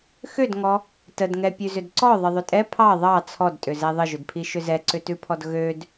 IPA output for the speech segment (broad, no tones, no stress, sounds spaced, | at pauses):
x ʏ d ŋ ɔ | t ə d ŋ ɛ pʲ ʉ z ʏ d ǀ ɔ ðˤ ə ðˤ ʏ tʼ ɛ pʰ ɑ ðˤ ɑ t͡sʰ ɔ d tʼ ʏ z ɛ ðˤ ə ʒ ʏ d pʰ i ʃ ʏ z ɛ ǀ ʏ t ʉ pʰ ɔ d ɣ ø d